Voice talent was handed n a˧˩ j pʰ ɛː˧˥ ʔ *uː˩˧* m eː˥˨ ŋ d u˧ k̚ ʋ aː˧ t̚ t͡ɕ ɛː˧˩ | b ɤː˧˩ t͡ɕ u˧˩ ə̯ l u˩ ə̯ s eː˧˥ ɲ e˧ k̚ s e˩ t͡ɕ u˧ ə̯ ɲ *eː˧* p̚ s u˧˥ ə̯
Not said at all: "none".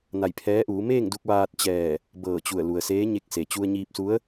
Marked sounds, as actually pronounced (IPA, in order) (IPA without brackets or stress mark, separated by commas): uː˩˧, iː˧